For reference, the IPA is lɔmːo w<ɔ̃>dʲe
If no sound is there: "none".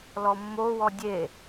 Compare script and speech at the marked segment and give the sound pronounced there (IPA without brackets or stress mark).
ɔ